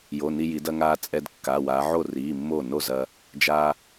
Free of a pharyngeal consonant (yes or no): no